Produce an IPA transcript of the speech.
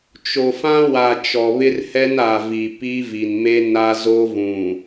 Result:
t͡ʃ o˨ f ã˦ w a˨ t͡ʃ ɔ˨ β ɪ˦ r h ɛ˦ n a˨ v i˨ p i˦ v i˨ n m e˦ n a˦ z o˦ v ũ˨

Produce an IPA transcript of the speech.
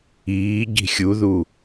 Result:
iː ɟ i̤ xʲ u ð u

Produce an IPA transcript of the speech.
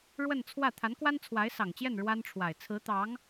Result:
ɻ w ə˥˧ n t͡sʰ w ä˥˩ t̪ʰ a˧˥ n k w a˥ n t͡sʰ w a˧˥ ɪ̯ s ɑ˨˩ ŋ t͡ɕ j ɛ˥˩ n ɻ w a˥ n ʈ͡ʂʰ w a˨˩ ɪ̯ t͡sʰ ɹ̩˧˥ t̪ ɑ˧˥ ŋ

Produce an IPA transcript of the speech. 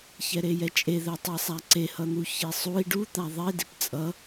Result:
ç ɛ ɾ e j ɛ t͡ʃʼ e ð ɛ tˤ i sˤ a ǀ e h ʌ n̪ u ç i sˤ u i̯ ɖ u t̪ a ðˤ e d i p t͡sʼ ʌ

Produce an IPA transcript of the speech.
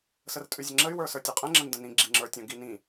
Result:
s ə r tʼ ʉ zʲ ə ŋ͡ǁ ə y̯ w ə˞ s ə˞ tʲ ʉ qʼ ɛ̃ ŋ͡ǁ ə̃ n d ə̃ n ĩ ɡ͡ǁ i ŋ͡ǁ ə˞ tʲ ə̃ ɡ i n ĩ

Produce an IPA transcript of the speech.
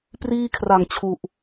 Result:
p r iː˥˩ kʰ r a˨˩ ŋ t͡ɕʰ u˨˩ ʔ

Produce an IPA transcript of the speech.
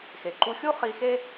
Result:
x e˩ ǃ u˧ xʲ u˥ χ i˧ x e˥

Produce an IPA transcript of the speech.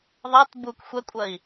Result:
ðˤ ɛ t b u k xʷ ɛ kʷʼ ɐ i̯

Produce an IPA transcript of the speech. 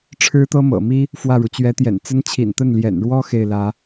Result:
ʈ͡ʂʰ ɻ̩˥ t̪ ɤ˥ m ɤ̰˨˩ m i˥ | f w ä˥˩ ɻ u˩ t͡ɕ ɥ ɛ˧˥ t̪ j ɛ̰˨˩ n t͡s ə˥ n t͡ɕʰ ḭ˨˩ n t̪ ə˥˩ n l j ɛ̰˨˩ n ɻ w ɔ˥ x e˥˩ ɪ̯ l ä˧˥

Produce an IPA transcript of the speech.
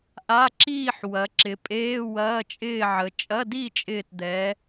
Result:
ʔ a˧˥˧ ǁ iː˥˨ ħ w ɐ˩˧ ǁ ɪ˩˧ pʼ eː˧˥˧ w ɐː˧˥˧ t͡ʃʼ ɪː˥˨ ʕ ə˩˧ t͡ʃʼ ɐ˧˥˧ d i˥˨ t͡ʃʼ ɪː˧˩ t d̪ ɛ˩˧

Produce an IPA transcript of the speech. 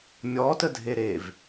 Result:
mʲ ɔ t ə dʱ e ɾ e v

